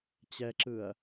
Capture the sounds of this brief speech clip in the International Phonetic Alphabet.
t͡ɕɛǁɯɐ̯

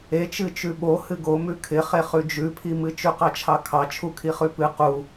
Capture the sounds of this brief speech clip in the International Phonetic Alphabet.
et͡ʃɨ t͡ʃʉɓo hɨɡo mʉkʰɪχe χʉd͡ʒʉpʰimɨ t͡ʃʉqɑt͡ʃʰɑkʰɑ t͡ʃʰukʰiχʉpɨ qu

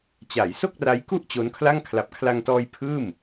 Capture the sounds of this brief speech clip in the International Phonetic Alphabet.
t͡ɕa˩˦jso˥˩k̚ra˦˥j ku˥˩ʔ t͡ɕo˦˥nkʰla˥˩ŋ kʰla˨˩p̚kʰla˧ŋtɔː˧j pʰɯː˥˩m

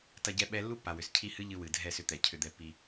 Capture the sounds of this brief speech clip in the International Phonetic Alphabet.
tɐ˧ɟɛ˧ ɓɛ˦ lːu˦pːa˨wʏ˨s cʰi˧ hɨ˦ʎɨ˧wɨ˨ dʱɛ˦˨sʏ˧t̪ɛ˨ cʰʏ˧d̪ɛ˧pːi˧

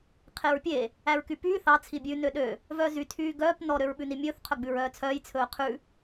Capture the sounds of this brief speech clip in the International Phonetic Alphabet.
qʰeɹpʲe | æɹkypyː θɑ t͡sʰibʲʉ nøɗø | vœːzy tʰyːɡœːp nɔ ɾøɹɓʉnimʲɵːθ qʰœɡ͡bʉɹœːt͡sʰœːj t͡sʰɵːqʰʉ

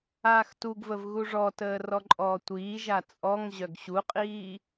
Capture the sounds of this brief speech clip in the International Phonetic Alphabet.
aːxtuɡvəv ɣuʐɔtəː rɔǃʼɔːtʷiːʒa t͡sʼɔŋ ʑœɡɕuqʼiː

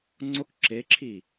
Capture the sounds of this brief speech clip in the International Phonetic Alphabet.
ŋ͡ǀok ǁeǁʰi

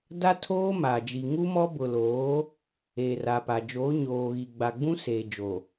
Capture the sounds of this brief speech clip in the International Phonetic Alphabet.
da˦ tʰoː˦ma˨ d͡ʒi˨ŋu˦mɔ˦ bʊ˨loː˨˦ | eː˨ra˨pa˨d͡ʒoː˨˦ ɲoː˨ɣi˨ ɡ͡ba˨ɡ͡bũ˦ seː˨d͡ʒo˨

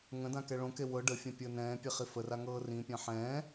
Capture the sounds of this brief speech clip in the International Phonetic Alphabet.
ŋə̃dã kɛɭõke wɤ ɖəfʲã pʲəːnɛ̃ːpʲe χifəra ŋɤːrĩpʲã ħɛ̃ː

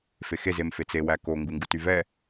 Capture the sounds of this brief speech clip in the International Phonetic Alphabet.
fexez emfet͡se wæko ŋɡuŋɡutyvɛ

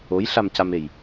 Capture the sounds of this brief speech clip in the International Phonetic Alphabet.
ojɬamcamej

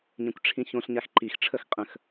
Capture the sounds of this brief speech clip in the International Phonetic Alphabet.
ɲẽkʷʈ͡ʂʰĩçõɬɲax ǃixʈ͡ʂʰəx qʼə̃x

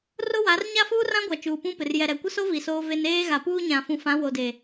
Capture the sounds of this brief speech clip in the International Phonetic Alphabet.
rʊ˦wa˨˦r ɲa˦fuː˦rã˦ɡʷa˨ t͡ʃuː˨pũ˦pɪ˨r jɛ˨ɾɛ˨kʷɪ˦so˦ vi˨soː˦ve˦n eː˦ɣa˨puː˦ɲã˨ fũ˨fã˨˦wo˨de˨

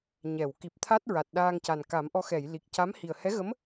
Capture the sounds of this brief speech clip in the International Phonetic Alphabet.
ɲɛ˨˩˨w ki˨˩p̚t̪ʰa˦˥t̚ ɹa˨˩t̚ ɗaː˧ŋca˨˩n ka˨˩˦mʔɔ˧ xɛ˨˩˨jli˨˩k̚ca˧˥m hi˨˩ə̯hɛ˧˥ɣə˧˥m

